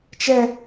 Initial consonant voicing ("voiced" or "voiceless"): voiceless